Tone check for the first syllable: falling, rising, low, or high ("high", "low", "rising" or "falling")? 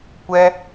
high